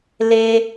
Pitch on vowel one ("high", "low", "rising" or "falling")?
high